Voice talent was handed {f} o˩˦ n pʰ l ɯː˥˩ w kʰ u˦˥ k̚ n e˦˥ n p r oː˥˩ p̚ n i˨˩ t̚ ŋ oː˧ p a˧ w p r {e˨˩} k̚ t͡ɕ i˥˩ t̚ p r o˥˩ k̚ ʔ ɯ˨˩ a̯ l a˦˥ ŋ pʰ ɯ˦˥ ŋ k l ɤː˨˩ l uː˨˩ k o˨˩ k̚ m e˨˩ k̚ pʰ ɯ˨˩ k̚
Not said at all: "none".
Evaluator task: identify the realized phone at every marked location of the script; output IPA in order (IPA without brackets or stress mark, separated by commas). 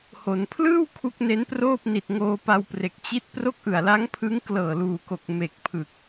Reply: h, e˨˩